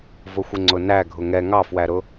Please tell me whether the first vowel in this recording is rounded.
yes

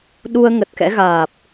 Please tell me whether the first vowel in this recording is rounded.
yes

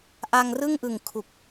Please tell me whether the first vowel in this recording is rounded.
no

